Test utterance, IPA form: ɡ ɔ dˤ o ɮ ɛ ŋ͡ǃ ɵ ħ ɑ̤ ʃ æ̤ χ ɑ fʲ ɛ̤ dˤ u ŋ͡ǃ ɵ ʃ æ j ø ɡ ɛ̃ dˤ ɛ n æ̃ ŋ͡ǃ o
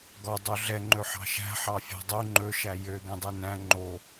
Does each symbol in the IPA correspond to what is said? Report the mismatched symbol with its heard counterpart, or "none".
χ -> ħ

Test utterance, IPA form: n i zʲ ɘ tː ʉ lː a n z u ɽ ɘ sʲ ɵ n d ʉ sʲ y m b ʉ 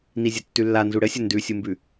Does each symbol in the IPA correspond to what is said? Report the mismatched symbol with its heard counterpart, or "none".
y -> u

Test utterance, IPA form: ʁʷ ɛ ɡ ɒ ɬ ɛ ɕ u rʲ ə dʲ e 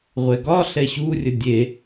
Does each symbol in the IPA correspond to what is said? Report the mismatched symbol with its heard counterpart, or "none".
none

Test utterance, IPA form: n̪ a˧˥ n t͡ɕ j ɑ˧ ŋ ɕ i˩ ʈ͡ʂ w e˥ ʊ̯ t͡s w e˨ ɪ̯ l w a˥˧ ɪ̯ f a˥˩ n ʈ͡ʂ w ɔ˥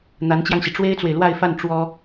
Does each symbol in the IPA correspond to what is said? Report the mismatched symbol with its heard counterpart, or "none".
ʊ̯ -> ɪ̯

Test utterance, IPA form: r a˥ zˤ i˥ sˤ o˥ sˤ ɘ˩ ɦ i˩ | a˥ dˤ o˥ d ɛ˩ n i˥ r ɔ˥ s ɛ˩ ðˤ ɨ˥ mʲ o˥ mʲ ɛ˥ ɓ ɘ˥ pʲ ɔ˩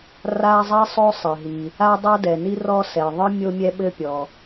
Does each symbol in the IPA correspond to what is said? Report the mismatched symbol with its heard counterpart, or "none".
none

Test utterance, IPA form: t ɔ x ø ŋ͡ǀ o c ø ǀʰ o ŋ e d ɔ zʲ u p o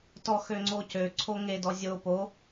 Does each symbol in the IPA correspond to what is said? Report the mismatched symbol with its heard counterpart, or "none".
u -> o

